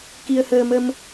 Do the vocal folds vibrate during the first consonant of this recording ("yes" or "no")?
no